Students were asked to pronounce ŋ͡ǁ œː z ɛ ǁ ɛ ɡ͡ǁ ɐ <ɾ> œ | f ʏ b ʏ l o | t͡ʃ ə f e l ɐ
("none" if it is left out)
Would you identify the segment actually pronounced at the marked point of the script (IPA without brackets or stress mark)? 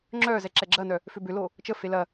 n